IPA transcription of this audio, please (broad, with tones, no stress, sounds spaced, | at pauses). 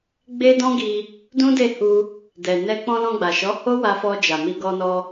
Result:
ɡ͡b e˦ d ɔ̃˦ ɡ i˧ | d ũ˦ d e˦˨ h u˧ | d ɛ˨ n ɛ˧ k͡p ɔ̃˧ l ɔ̃˧ ɡ͡b a˨ ʃ ɔ˨˦ h o˦ w a˧ f ɔ˧ d͡ʒ a˨ m i˧ ɡ ɔ˧ n ɔ˧